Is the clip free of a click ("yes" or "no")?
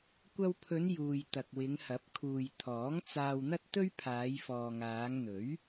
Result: yes